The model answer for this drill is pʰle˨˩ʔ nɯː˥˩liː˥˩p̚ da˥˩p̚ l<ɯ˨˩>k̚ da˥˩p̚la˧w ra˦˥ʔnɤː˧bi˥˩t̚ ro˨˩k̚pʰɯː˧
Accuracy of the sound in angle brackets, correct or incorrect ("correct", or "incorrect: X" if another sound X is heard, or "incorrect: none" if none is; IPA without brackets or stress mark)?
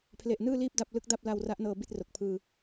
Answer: incorrect: ɯ˦˥